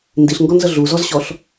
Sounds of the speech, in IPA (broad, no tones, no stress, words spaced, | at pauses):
ndiɬŋɡɔnzə ɮuzɔzɕɔɬ